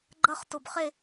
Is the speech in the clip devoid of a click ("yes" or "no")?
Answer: no